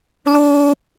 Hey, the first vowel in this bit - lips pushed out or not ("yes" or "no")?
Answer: yes